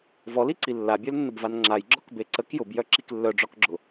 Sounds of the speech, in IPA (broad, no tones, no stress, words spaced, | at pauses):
vɔliǀi lːabʲœlnːəbvan ŋ͡ǁajɡ͡ǁɔkbe ǀək jʊbjœǁik lːœɖ͡ʐɔkɡ͡ǁʊ